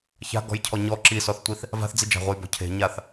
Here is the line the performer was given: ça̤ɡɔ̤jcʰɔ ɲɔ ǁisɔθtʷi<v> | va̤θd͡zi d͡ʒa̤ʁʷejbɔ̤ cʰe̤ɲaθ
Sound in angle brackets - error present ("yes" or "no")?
yes